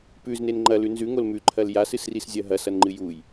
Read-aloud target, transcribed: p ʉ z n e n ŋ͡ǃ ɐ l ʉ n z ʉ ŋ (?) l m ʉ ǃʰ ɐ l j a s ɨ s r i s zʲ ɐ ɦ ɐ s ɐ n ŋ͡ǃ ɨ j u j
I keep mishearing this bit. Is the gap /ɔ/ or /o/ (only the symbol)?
o